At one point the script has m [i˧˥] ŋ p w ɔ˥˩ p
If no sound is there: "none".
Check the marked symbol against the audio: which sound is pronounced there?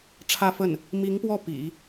i˧˥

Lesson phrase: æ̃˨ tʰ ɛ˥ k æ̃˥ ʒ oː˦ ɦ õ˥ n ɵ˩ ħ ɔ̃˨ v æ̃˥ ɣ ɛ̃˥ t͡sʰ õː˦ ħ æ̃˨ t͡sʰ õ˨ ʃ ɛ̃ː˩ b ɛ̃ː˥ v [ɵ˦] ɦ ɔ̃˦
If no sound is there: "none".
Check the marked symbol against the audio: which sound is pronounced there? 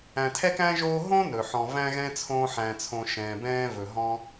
ɵ˩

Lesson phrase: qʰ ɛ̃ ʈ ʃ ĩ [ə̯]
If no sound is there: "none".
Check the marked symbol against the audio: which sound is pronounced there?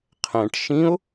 ʊ̯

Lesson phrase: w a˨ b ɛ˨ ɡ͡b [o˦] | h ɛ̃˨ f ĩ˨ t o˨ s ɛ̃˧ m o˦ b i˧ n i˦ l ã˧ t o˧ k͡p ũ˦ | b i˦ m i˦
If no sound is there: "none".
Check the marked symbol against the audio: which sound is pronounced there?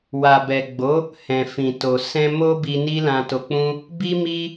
o˨˦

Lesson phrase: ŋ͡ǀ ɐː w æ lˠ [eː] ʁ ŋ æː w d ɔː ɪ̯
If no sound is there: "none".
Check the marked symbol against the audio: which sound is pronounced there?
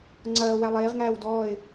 eː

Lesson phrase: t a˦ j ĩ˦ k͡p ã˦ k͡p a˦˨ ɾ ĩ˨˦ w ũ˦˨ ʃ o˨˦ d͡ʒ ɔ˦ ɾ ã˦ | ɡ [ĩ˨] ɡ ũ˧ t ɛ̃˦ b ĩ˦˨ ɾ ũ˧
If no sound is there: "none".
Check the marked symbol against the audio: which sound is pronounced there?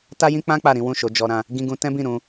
ĩ˧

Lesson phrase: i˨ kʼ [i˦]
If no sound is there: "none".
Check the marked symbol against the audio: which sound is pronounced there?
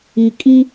i˦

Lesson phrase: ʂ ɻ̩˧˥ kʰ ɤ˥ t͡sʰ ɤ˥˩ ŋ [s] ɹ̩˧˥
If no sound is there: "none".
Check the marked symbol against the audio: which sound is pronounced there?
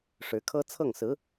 s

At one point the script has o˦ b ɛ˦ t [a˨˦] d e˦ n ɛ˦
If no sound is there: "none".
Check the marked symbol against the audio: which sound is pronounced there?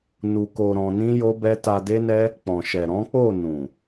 a˧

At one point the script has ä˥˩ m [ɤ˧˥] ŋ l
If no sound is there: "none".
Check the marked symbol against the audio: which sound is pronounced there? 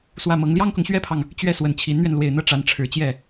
ɤ˧˥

